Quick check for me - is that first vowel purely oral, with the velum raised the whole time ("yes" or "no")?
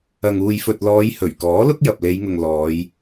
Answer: yes